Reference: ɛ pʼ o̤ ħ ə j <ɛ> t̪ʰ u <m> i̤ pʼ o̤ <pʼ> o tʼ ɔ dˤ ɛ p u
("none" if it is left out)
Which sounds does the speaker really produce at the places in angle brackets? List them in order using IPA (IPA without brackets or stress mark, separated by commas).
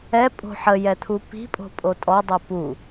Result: ɛ, p, pʼ